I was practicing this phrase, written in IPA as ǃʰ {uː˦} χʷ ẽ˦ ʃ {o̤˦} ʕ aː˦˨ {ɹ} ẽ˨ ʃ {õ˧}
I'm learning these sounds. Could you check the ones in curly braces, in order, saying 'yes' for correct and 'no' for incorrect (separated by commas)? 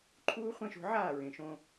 yes, no, yes, yes